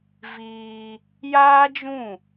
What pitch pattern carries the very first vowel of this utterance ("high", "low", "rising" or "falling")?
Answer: high